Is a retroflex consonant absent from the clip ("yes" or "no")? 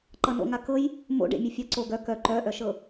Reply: no